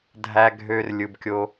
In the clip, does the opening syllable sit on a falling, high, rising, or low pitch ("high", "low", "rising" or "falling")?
high